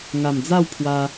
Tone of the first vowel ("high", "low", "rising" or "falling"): low